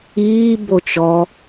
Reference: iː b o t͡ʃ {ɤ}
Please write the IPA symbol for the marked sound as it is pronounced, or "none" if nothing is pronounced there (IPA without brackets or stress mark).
ɔ